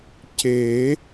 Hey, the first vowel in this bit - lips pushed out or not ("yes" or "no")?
no